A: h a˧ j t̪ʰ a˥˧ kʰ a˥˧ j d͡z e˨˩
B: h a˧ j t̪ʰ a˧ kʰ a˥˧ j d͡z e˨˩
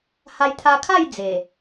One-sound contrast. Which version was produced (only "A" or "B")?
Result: B